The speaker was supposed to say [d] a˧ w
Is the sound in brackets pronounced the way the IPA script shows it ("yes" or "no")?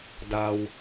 yes